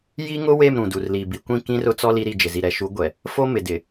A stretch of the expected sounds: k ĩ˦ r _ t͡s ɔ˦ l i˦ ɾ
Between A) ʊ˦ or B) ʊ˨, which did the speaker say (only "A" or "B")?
A